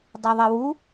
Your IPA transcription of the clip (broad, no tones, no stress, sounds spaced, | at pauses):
dˤ a ðˤ e w u